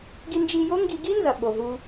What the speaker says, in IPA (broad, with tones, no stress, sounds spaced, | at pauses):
ɡ i˧ n d͡ʒ i˧ j o˥ ŋ ɡ i˧ ɡ i˥ n z ɐ˩ ɓ o˩ ɦ u˧